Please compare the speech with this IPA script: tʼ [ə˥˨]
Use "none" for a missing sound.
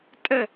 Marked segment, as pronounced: ə˥˨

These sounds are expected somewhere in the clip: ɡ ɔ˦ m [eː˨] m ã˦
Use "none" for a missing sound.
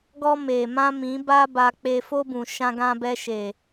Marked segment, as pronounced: eː˨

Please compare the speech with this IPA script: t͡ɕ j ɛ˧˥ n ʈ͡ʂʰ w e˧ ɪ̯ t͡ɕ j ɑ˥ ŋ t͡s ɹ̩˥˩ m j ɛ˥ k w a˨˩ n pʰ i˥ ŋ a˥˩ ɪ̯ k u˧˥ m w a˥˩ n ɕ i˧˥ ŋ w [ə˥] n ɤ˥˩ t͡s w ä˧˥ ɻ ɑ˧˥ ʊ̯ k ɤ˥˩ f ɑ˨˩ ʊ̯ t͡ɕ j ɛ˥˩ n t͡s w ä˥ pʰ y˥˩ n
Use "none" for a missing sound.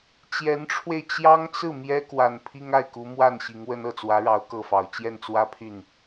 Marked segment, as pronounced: ə˥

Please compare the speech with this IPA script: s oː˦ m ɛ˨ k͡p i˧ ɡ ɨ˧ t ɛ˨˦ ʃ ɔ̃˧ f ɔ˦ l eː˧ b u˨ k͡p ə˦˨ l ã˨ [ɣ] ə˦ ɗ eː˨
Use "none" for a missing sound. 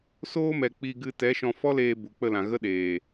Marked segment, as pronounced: ɣ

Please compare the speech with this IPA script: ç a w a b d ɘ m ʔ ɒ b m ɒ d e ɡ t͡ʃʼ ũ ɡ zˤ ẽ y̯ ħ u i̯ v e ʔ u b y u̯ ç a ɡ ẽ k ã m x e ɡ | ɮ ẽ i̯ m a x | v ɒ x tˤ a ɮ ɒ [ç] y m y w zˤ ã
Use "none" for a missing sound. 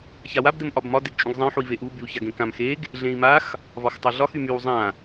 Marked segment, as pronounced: x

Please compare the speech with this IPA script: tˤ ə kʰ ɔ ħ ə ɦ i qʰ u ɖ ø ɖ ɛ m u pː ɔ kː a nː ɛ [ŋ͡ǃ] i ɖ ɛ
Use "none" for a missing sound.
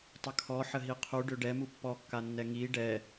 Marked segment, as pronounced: ŋ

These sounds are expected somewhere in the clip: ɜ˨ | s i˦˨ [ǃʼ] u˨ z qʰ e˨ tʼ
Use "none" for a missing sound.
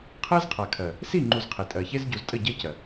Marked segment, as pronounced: ŋ͡ǃ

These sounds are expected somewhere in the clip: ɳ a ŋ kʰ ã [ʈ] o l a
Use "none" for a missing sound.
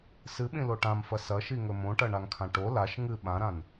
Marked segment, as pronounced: ʈ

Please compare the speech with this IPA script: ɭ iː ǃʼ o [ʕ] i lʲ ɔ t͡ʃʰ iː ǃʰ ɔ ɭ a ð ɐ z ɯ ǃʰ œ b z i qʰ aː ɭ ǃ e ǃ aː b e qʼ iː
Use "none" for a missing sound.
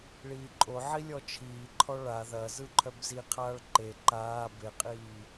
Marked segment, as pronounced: ʕ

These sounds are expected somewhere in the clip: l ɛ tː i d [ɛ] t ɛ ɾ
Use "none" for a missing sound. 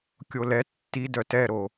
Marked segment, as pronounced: œ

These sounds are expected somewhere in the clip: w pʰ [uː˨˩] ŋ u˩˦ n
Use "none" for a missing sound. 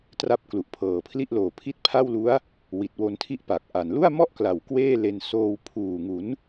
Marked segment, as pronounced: uː˨˩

